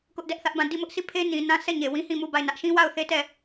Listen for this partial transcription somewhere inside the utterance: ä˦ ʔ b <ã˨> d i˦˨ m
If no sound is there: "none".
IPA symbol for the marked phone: ã˦˨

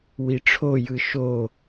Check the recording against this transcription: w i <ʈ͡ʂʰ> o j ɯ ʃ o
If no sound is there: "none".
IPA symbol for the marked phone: ʈ͡ʂʰ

